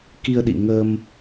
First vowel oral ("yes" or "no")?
yes